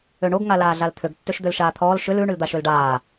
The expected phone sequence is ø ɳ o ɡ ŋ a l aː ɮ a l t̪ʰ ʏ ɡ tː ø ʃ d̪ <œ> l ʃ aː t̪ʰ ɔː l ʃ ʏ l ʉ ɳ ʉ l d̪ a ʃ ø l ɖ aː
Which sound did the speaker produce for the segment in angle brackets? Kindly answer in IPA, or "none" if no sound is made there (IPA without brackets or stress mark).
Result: ø